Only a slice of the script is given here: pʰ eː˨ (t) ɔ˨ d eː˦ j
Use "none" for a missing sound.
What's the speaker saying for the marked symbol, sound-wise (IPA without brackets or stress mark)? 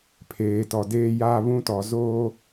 t